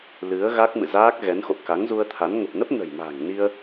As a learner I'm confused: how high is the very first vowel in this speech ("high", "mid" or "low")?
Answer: high